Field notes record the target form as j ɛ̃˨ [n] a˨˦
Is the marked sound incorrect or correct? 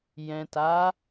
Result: incorrect: t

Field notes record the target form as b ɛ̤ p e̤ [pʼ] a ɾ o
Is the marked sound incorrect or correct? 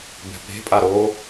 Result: correct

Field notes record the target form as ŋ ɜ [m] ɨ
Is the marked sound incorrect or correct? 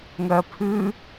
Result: incorrect: pʰ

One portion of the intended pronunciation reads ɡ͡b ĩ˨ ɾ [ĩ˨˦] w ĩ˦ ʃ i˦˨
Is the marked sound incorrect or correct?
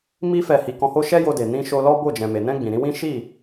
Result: correct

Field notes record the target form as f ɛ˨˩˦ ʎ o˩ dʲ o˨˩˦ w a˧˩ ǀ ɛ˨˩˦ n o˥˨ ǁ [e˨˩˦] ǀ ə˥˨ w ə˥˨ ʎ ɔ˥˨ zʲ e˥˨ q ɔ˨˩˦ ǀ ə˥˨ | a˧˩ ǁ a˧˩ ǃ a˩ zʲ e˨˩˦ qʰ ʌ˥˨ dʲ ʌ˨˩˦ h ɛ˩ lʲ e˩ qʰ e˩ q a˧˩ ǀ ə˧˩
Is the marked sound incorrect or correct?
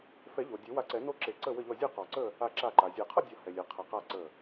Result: correct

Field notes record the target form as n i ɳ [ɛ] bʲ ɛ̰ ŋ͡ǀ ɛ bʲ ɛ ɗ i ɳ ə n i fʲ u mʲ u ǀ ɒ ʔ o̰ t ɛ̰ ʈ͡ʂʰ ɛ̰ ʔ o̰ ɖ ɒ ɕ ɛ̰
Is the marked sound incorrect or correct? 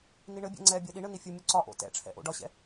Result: incorrect: ɘ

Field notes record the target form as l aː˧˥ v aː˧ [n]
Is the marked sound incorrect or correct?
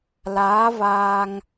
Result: incorrect: ŋ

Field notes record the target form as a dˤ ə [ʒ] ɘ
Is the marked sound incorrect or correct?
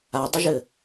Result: correct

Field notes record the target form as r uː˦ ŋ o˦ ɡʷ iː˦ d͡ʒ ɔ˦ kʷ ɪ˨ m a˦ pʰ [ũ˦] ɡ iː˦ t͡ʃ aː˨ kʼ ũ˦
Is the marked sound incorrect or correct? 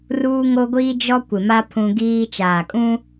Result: correct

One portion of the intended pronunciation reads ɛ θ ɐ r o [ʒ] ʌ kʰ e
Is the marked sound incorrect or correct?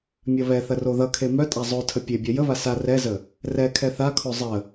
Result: incorrect: ð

